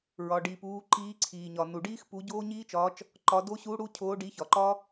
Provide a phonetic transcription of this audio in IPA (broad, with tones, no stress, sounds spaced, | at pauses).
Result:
ɹ ɒ˩ ɖ iː˩ p uː˨˦ ǃ iː˨˦ ǀʰ iː˩ ɲ ɒ˩ n u˩ ɖ iː˦˥ x p u˨˦ ɟ oː˦˥ ɲ iː˦˥ t͡ʃ ɒː˨˦ t͡ʃ | ǃ ɒ˨˦ d o˦˥ ɕ u˨˦ ɽ u˨˦ cʰ oː˨˦ ɖ i˨˦ ç ɒ˩ ǃ ɒ˦˥